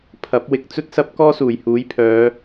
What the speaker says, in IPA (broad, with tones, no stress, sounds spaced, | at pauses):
pʰ ɐ˨˥ p̚ w ɪ˨ k̚ t͡s ɵ˥ t̚ s ɐ˥ p̚ k ɔː˥ s uː˨˩ j h uː˨˥ j pʰ œː˨˧